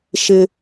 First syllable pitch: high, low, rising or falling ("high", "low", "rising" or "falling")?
high